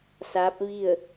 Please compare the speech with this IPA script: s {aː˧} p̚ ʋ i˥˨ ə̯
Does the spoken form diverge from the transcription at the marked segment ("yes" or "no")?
yes